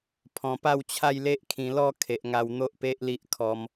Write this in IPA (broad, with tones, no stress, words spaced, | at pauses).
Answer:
pʰɔ̃˨˩pa˥˧wt͡ɕʰa˥˧j le˦ʔkʰĩ˧ lɔ˥˧ kʰe˨ʔŋa˧w n̪o˦ʔpe˦ʔli˦ʔ kʰɔ˧m